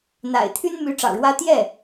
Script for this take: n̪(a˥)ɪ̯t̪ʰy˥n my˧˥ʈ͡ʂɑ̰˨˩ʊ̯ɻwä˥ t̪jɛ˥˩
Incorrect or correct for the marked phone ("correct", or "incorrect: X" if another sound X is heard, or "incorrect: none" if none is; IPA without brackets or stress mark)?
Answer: incorrect: a̰˨˩